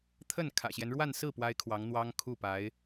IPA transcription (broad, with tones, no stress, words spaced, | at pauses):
t̪ʰə˥˩n kʰä̰˨˩ɕjɛ˦n ɻwa˥˧nsɹ̩˥˩ pwa˥ɪ̯kʰwɑ˧˥ŋn̪wɑ˥ŋ kʰu˥˩pa˧˥ɪ̯